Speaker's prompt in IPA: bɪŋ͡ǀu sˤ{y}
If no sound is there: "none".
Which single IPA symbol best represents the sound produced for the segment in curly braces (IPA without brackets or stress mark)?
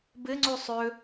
ø